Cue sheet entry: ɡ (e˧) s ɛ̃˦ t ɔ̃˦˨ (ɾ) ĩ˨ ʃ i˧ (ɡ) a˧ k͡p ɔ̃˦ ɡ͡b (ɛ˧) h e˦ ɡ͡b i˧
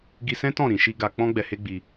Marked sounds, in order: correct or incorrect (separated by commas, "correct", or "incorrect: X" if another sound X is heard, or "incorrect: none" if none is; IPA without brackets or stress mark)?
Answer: incorrect: i˧, correct, correct, correct